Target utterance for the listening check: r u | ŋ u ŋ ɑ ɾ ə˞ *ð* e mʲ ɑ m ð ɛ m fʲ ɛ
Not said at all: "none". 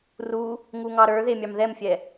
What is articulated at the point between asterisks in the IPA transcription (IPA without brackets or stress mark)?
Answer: ð